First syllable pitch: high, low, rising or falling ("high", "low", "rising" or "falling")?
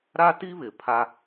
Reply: high